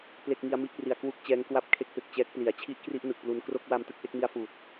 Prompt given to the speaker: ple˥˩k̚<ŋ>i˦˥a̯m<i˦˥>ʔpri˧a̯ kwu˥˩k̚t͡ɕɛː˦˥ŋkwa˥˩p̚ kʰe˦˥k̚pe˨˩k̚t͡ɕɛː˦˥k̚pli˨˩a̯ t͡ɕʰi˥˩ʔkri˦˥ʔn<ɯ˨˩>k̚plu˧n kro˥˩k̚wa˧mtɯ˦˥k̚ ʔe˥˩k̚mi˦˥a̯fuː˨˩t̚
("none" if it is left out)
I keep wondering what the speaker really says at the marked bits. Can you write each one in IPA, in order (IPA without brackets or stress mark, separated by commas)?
ŋ, i˦˥, ɯ˨˩